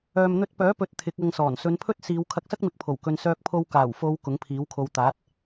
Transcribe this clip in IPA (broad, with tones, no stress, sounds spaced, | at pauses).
œː˨ m n̪ ɵ˧ t̚ p œː˨˥ p ɵ˨˥ t̚ t̪ʰ ɪ˨˥ k̚ ɐ˧ ŋ s ɔː˨˩ n s ɵ˨˧ n pʰ ɵ˥ t̚ s iː˨˧ w kʰ ɐ˧ k̚ s ɐ˥ k̚ m ɪ˨˥ k̚ pʰ o˨˩ w k ɵ˧ n s œː˧ k̚ pʰ o˧ w k aː˨˩ w f o˨˧ w k ʊ˨˥ ŋ pʰ iː˨˥ w kʰ o˧ w t̪ aː˨˥ t̚